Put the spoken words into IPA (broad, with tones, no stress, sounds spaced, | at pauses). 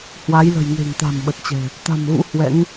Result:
h w a˨˦ j l ə̤˨˩ j ŋ e̤˨˩ ŋ t̪ a̤˨˩ m ɓ ə˨˩ t̚ t͡ɕ ɛ̤˨˩ | t̪ a̤˨˩ m ɣ ṵ˧˥ h w ɛ̰˧˥ ŋ